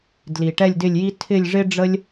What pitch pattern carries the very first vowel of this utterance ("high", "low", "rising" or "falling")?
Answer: low